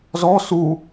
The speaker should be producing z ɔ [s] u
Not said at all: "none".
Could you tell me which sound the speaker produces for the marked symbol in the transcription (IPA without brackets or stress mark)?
s